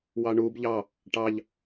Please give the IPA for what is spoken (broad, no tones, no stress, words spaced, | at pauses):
wɑɳub ʎɑ | ʈɑʎ